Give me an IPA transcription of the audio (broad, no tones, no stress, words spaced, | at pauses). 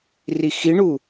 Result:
rixiɳu